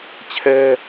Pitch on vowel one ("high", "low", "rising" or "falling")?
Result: high